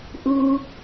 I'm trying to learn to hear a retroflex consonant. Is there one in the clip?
no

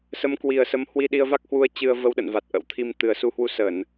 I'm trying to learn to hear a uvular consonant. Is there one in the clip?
no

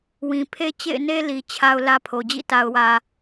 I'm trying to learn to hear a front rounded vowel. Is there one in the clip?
no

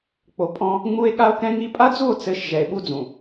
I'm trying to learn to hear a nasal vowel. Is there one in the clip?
yes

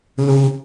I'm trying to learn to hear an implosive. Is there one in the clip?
no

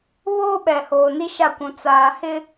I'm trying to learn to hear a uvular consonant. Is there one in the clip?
no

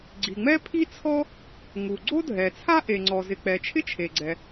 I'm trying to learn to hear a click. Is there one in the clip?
yes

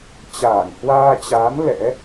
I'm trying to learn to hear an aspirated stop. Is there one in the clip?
no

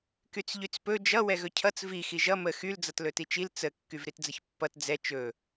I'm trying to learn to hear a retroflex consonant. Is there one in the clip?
no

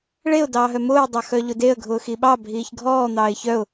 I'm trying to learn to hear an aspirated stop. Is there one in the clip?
no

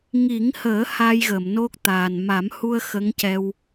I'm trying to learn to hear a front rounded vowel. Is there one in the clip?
no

